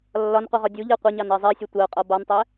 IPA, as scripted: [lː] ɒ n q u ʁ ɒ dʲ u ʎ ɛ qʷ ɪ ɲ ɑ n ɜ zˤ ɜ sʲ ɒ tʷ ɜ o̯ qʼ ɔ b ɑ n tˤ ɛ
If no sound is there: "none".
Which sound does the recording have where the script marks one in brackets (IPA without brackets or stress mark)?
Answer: lː